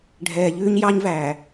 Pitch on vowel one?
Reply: low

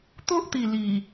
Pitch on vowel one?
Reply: high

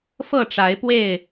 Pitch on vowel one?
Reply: falling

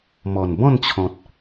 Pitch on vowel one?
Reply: low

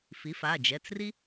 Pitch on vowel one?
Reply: rising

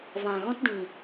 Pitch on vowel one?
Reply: low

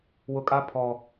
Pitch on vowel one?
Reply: low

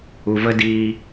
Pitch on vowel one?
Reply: low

